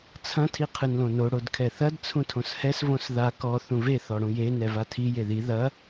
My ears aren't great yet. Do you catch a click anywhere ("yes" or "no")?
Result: no